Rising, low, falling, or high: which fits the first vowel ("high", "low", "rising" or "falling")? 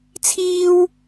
high